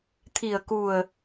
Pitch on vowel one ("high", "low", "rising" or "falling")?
low